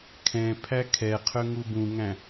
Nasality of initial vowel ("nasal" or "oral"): nasal